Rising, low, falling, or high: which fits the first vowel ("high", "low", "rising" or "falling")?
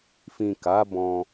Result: low